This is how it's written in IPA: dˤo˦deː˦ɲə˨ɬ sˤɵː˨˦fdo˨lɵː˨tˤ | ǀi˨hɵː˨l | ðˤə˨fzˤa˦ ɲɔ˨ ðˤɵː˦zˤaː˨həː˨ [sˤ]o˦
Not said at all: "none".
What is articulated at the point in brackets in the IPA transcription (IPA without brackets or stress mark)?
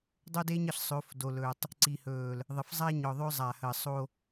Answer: sˤ